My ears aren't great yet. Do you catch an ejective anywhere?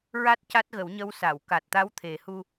no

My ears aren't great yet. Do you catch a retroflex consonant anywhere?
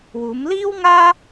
no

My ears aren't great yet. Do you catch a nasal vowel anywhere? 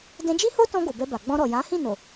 yes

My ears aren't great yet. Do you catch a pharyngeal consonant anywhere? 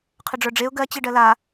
no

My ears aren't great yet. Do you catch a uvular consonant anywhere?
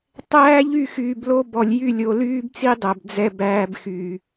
no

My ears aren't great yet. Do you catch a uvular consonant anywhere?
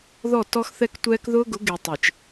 no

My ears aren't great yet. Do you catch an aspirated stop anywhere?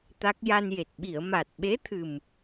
yes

